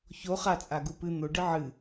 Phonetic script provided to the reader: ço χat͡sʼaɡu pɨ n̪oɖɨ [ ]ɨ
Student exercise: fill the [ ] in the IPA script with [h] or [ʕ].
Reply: ʕ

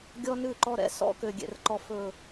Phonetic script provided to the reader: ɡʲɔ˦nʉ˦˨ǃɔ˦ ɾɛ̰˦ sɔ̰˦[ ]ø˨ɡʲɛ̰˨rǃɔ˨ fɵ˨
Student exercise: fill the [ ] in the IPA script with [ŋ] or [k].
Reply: k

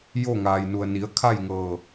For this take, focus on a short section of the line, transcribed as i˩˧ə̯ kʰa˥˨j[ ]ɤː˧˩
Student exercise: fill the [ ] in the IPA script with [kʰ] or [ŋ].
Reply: ŋ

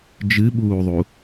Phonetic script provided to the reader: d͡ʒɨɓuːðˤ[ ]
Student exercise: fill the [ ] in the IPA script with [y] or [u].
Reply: u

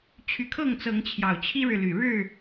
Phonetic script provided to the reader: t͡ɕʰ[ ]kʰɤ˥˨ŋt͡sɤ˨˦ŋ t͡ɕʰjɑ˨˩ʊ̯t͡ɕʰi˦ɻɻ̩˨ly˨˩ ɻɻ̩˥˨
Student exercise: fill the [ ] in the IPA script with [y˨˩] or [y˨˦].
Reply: y˨˦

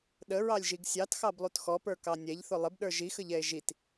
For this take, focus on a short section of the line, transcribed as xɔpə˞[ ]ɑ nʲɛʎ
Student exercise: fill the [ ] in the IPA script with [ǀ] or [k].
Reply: k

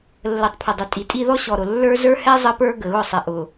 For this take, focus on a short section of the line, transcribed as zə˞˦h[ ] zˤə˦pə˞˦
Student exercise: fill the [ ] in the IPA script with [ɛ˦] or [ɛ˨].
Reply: ɛ˦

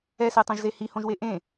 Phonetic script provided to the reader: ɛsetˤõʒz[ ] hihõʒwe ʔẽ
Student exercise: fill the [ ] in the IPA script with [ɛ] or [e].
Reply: e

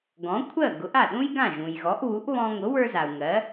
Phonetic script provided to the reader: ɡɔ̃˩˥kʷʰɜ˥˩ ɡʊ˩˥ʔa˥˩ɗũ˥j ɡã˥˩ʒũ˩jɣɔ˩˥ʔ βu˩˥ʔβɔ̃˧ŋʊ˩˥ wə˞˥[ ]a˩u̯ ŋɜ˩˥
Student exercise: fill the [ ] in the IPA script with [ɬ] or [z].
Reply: z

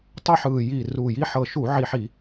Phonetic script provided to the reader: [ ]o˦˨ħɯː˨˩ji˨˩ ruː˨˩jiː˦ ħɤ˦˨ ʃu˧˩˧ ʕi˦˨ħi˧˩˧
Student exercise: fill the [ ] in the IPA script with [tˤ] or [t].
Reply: tˤ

